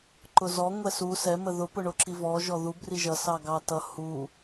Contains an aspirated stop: no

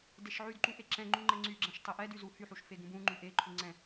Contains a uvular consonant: no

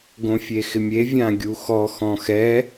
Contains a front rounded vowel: no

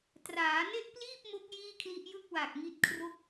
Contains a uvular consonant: no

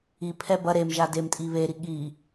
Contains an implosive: yes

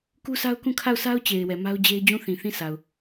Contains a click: no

